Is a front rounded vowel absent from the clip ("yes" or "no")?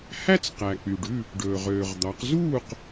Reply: no